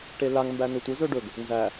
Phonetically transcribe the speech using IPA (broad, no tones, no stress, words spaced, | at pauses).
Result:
ʈelaŋ mbænɵtʷɘ zɵɖɵɡ | nzæ